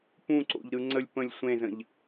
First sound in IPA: p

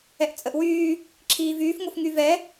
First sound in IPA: ɛ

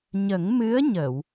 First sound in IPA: ɲ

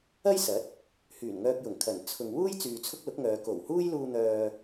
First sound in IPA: ɐ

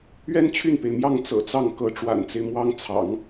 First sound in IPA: ɥ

